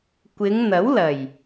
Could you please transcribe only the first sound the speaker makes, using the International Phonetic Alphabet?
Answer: kʷ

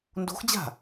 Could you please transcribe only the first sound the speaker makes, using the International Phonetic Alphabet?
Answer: n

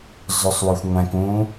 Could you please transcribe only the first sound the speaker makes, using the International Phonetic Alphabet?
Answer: z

